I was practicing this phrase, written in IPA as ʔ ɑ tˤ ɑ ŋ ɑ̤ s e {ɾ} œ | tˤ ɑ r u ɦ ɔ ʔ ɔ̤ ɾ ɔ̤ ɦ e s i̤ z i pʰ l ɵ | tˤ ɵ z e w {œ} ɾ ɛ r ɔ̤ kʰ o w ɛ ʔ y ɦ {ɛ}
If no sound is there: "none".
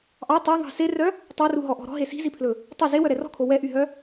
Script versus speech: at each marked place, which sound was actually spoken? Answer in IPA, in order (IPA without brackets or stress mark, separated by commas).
r, œ, œ